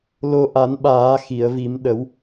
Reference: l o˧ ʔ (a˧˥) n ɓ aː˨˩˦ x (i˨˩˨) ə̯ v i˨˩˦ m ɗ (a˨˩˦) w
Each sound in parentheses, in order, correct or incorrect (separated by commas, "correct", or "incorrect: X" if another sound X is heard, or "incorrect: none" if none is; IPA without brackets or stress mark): incorrect: a˨˩˦, correct, incorrect: ə˨˩˦